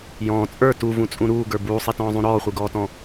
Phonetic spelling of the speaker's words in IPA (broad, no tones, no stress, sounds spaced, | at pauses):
j ɔ̃ː t͡sʼ ə˞ t u v ũ t͡sʼ ũ ɾ uː ɡ ə˞ b uː sˤ i t ɔ̃ː zˤ ũ ɾ ɔː χʷ i ɡ ɔː t ɔ̃